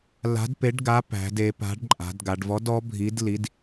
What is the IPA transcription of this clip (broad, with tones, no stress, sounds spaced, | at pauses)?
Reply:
l a̤˨˥ d p e˨˥ ɖ ɡ a˨˥ p æ̤˩˧ d e˩˧ p a̤˨˥ ɖ ǃʼ a̤˩˧ d ɡ a˩˧ ɖ v ɔ˨˥ d ɔ˨˥ bʱ i˨˥ d l i˨˥ d